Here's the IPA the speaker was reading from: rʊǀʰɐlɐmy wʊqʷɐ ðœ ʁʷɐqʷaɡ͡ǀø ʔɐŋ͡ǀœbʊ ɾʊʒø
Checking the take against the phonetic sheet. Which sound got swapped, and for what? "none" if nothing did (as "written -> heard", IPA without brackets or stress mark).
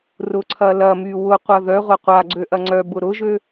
none